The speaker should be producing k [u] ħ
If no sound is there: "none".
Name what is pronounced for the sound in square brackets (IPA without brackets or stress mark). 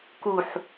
u